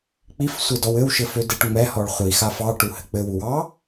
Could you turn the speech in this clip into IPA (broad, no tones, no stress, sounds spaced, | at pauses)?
k͡p i f sʷ ɘ d ɔ w ɘ w ʃ ɘ f ø d e ʈ ŋ͡m ɛ h ɔ ɭ χʷ i x a f ɑ ʈ u h ɘ k͡p ɘ w u w ɑ